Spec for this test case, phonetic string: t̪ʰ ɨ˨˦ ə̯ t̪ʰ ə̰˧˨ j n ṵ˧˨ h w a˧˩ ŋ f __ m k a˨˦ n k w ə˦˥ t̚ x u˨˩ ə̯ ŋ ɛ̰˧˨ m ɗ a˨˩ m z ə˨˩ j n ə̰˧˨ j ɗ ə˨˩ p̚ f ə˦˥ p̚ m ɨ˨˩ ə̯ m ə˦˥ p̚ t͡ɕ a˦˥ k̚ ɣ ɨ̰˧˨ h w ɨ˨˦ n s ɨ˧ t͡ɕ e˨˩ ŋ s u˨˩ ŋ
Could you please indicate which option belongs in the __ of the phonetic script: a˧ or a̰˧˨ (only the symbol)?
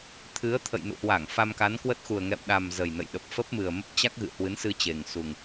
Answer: a˧